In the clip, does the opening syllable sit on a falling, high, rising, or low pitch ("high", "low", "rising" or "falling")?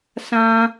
high